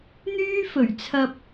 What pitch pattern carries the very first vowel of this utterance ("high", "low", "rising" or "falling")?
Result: high